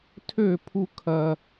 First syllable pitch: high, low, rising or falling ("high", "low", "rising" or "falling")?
falling